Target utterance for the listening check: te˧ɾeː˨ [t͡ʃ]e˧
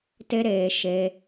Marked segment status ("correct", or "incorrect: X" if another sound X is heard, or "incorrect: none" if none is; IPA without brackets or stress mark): incorrect: ʃ